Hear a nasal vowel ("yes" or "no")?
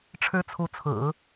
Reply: no